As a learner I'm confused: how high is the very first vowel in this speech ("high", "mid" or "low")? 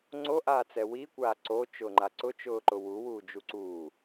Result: mid